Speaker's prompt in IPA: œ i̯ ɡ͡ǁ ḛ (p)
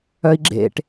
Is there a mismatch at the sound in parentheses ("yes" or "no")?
yes